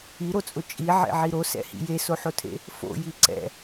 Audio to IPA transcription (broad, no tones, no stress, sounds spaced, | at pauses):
i ɾ o t͡sʼ ʊ t͡ʃʼ i ʕ ḛ ʕ i ɾ o s ɛ̰ h ḭ j e s o ħ o tʰ ḛ | f o̰ j i ǀ ɛ̰